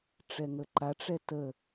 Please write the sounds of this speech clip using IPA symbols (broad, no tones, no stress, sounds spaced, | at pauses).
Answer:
ʈ͡ʂ ɛ ŋ ə ǃ a ʈ͡ʂ ɛ t ə